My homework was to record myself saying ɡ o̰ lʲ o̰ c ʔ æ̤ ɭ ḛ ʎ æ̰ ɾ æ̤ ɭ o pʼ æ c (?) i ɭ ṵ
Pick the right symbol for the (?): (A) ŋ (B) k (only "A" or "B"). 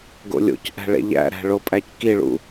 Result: B